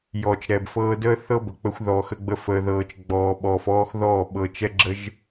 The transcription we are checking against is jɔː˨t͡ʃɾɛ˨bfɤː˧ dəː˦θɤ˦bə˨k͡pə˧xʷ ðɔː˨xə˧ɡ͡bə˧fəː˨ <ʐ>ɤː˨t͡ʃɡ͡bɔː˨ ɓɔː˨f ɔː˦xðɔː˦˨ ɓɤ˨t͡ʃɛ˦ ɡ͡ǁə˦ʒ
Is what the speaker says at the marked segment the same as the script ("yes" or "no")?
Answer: no